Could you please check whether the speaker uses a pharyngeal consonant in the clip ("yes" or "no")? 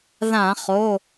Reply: no